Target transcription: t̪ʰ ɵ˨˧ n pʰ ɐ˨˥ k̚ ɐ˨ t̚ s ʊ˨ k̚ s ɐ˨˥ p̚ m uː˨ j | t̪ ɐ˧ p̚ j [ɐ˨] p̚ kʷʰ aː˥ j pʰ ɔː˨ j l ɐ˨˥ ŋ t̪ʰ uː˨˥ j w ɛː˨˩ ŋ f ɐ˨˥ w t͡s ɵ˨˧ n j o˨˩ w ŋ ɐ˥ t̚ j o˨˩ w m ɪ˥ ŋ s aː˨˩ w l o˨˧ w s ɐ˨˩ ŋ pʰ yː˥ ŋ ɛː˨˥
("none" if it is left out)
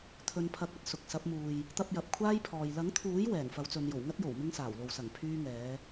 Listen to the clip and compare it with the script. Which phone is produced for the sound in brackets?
ɐ˨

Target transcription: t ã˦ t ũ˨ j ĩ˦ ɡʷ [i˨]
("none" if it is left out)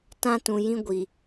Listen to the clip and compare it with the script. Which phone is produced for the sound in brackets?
i˨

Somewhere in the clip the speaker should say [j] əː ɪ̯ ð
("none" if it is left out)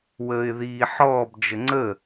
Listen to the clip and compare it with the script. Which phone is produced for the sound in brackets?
w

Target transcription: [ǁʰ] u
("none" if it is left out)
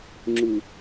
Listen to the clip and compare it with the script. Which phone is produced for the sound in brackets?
ŋ͡ǁ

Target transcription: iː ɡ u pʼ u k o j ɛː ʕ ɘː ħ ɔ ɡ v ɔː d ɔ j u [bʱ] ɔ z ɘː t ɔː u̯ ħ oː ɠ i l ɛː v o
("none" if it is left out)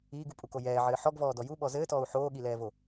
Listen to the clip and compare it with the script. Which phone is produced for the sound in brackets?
ɓ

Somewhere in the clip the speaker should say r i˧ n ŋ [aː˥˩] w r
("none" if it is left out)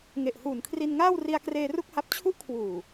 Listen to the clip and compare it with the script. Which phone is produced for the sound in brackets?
aː˥˩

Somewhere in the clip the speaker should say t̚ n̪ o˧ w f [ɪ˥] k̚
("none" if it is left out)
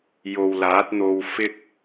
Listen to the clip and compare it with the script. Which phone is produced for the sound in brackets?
ɪ˥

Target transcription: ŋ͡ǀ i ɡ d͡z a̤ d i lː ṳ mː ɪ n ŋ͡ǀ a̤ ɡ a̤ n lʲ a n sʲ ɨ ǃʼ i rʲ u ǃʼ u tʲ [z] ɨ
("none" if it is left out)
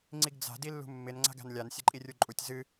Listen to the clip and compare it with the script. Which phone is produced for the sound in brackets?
z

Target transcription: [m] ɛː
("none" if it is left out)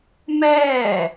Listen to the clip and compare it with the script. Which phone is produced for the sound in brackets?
m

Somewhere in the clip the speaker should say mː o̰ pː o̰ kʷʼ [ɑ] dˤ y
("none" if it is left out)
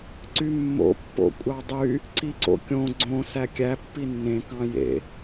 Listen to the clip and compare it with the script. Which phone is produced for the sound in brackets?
ɑ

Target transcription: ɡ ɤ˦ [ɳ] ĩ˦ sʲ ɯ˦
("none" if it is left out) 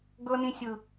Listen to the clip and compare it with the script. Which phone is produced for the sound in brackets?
n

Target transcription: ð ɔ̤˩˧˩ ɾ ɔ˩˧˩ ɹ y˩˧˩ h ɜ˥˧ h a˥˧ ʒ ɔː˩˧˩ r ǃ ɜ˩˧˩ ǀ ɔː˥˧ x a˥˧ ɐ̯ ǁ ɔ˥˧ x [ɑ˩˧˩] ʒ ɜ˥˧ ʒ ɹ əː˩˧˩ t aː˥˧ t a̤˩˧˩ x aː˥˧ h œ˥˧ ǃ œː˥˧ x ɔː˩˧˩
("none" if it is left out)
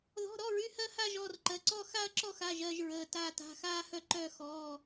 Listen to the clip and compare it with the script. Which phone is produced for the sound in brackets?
a˩˧˩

